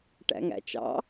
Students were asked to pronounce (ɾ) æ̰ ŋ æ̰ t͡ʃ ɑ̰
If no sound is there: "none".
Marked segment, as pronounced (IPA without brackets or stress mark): ʈ